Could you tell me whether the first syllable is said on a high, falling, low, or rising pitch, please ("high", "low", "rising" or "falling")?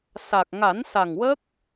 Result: low